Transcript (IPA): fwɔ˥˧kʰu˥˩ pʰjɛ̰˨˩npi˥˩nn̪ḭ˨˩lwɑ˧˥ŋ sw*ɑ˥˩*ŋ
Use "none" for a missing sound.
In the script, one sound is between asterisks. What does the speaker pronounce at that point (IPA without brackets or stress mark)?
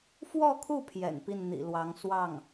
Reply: ɑ˥˩